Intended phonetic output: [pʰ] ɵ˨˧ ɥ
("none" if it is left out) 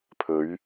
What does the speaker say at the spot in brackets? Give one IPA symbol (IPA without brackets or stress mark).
pʰ